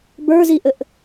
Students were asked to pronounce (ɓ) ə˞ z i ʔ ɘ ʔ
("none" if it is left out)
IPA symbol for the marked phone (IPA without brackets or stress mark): b